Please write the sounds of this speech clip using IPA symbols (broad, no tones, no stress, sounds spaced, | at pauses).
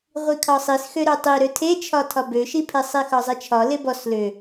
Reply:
ʁʷ i kʰ ɒ sˤ i s x ø ɾ ø tˤ i ɾ ø tʰ e t͡ʃʰ ɒ tʰ ɒ b ø ʃ i pʰ e sˤ i x ɒ zˤ e t͡ʃʰ ɒ l e b ɔ s l ø